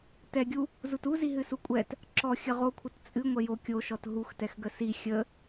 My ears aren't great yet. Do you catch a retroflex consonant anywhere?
no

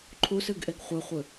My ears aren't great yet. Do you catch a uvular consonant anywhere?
yes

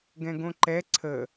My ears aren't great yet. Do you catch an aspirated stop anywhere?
yes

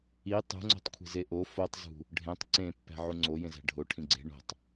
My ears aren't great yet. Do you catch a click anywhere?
yes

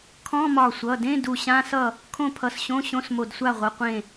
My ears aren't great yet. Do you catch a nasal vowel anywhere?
yes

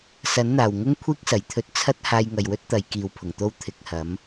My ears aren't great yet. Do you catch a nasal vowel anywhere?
no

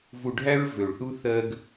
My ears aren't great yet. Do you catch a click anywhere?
no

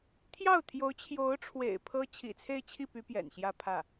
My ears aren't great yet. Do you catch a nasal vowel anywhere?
no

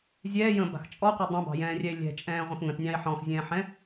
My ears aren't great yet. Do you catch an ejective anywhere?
yes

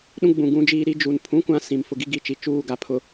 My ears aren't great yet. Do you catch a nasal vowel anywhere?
yes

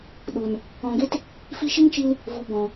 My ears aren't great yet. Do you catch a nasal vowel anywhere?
yes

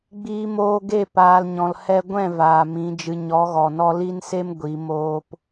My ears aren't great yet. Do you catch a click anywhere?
no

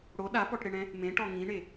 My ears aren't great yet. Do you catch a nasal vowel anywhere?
yes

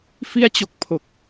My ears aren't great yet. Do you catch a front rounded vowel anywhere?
no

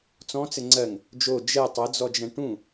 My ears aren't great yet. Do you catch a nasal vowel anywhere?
yes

